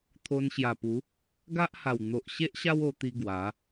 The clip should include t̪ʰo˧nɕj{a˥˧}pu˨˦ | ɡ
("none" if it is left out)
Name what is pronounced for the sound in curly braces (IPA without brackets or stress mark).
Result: a˨˩